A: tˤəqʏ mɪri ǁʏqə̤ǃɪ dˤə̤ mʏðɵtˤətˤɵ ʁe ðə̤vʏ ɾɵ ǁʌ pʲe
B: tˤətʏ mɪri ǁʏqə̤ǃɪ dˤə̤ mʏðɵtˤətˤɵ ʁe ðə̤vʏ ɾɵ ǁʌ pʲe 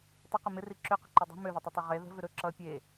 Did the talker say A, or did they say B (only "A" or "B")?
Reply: A